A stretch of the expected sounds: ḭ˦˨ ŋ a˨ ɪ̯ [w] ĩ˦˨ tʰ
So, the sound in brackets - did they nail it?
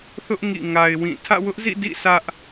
yes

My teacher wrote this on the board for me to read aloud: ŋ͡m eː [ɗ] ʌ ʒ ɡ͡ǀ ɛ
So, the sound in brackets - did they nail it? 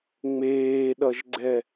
yes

